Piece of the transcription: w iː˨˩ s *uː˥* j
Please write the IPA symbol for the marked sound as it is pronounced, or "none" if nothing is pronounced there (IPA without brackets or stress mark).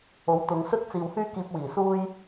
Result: uː˥